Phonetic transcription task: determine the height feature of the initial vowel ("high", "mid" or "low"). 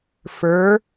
mid